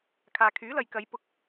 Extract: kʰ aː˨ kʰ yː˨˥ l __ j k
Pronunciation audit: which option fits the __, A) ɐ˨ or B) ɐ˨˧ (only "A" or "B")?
A